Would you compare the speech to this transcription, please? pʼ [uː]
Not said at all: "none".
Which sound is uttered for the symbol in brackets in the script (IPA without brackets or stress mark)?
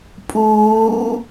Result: uː